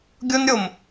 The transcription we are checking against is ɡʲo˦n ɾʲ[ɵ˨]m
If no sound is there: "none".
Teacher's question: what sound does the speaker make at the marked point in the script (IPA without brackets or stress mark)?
o˨